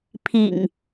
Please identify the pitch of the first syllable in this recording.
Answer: low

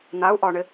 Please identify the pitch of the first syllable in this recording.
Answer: rising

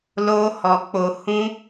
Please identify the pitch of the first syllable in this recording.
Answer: high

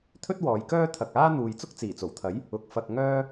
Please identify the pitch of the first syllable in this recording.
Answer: high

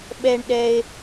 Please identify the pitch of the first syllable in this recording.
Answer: high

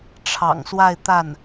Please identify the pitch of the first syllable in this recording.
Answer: low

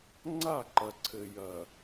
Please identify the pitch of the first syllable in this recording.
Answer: falling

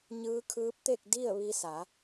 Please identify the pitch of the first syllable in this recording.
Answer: rising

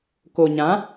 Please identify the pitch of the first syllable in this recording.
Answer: low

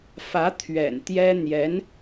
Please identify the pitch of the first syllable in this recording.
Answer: rising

